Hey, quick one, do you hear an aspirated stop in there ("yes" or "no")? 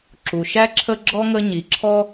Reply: yes